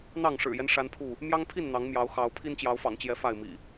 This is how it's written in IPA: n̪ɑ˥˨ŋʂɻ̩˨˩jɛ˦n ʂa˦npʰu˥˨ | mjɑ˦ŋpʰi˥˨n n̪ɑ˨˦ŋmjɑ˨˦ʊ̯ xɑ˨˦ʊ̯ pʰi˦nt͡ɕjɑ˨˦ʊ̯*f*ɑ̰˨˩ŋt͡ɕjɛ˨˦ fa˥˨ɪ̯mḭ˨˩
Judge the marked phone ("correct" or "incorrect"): correct